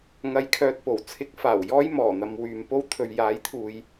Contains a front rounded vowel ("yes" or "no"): yes